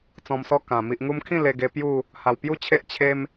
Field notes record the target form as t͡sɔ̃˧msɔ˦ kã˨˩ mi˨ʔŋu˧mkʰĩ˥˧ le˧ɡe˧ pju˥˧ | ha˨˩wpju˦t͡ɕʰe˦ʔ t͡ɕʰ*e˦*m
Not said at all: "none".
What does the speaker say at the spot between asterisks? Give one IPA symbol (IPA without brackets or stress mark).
e˦